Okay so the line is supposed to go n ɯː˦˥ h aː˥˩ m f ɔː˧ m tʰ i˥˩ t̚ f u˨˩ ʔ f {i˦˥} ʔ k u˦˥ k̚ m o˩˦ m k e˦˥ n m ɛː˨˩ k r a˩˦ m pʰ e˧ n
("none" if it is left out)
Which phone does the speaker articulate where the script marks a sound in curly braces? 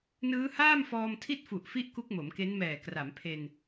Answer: i˥˩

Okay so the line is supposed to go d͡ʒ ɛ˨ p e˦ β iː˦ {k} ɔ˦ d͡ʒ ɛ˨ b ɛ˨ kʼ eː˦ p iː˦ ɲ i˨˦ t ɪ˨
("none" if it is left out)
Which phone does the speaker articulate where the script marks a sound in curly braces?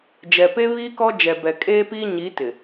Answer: k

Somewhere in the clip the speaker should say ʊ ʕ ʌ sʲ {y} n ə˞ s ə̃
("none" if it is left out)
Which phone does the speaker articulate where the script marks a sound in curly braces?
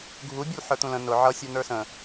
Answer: u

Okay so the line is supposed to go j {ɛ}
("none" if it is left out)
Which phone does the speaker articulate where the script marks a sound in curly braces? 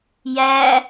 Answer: æ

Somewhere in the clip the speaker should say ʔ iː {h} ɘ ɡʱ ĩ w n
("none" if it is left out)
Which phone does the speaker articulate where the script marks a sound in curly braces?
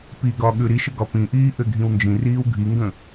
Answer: ʔ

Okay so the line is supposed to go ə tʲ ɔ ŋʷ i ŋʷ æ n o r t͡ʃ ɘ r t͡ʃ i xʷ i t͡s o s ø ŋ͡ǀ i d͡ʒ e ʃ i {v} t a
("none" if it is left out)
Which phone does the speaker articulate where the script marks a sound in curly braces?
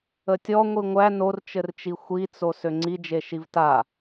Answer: v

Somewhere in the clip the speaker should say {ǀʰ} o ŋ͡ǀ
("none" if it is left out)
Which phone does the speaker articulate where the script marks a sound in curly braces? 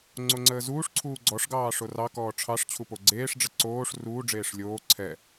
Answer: ŋ͡ǀ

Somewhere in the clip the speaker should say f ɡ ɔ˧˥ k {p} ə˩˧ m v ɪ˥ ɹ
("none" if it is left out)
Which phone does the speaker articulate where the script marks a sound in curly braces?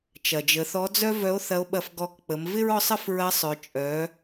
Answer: k͡p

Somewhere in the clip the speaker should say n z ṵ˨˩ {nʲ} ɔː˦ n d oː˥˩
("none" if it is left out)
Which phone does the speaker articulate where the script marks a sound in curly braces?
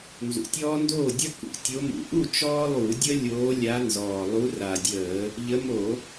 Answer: tʲ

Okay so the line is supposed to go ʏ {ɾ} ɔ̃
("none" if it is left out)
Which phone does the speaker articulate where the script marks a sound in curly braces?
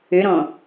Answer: ɾ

